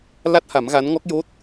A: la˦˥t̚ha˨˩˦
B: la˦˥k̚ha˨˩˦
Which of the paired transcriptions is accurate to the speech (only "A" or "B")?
A